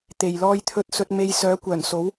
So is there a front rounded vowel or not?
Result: yes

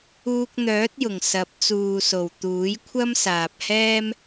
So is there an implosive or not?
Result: no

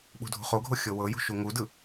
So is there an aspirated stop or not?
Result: no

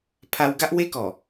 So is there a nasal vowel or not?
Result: no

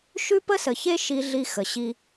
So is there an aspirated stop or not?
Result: no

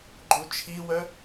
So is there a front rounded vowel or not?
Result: yes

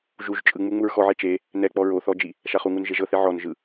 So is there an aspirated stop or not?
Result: no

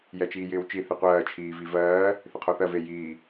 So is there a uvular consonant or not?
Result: yes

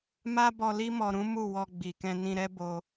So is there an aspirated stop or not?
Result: no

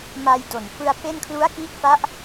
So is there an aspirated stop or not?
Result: yes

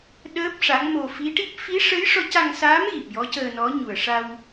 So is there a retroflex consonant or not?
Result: yes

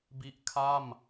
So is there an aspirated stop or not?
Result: yes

